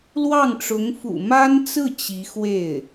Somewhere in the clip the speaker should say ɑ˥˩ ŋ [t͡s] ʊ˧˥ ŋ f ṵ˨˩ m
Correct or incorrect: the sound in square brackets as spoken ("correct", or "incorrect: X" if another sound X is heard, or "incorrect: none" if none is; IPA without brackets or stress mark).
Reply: incorrect: ʈ͡ʂ